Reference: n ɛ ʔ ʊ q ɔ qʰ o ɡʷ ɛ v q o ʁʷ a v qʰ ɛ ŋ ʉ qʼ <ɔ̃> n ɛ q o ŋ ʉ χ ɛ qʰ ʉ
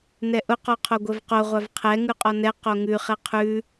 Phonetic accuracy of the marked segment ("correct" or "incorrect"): incorrect